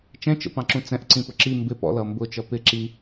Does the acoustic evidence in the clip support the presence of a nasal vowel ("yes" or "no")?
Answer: yes